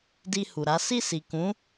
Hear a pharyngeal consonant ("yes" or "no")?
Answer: no